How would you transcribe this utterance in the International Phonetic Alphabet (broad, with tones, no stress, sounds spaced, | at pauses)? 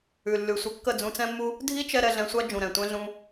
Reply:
ʉ˨ lː ʉ˨ sʷ ə˧ kː ə˦˨ d͡z ũ˧ t͡s ɛ̃˦ mː u˦ | dʱ i˦ t͡ʃ ɛ˧ ɾ ɛ˧ ɮ ɛ̃˧ sʷ a˦ d͡ʒ ũ˨ ɾ ɛ̃˨ tʷ ɛ̃˦ ɮ ũ˦